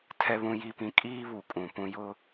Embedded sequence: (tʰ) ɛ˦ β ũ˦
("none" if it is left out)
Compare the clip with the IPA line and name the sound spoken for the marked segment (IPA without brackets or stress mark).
tʰ